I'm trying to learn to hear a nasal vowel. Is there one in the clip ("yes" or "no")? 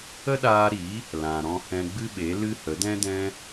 yes